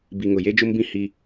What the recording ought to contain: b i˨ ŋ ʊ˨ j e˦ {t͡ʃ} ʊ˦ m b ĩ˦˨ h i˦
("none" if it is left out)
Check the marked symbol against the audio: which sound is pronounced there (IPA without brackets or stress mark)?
d͡ʒ